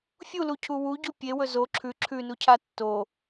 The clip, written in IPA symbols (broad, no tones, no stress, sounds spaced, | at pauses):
fʲ u l u cʰ u w u ɟ u pʲ e w ɵ z o ǁʰ ʉ ǁʰ ʉ n u cʰ a tː o